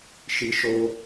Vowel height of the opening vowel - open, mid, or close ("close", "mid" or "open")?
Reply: close